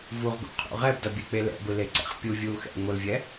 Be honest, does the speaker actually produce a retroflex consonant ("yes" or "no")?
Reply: no